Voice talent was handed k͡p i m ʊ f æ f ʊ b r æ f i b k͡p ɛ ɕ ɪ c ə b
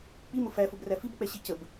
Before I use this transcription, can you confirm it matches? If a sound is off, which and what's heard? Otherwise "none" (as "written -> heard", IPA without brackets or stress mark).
ɪ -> i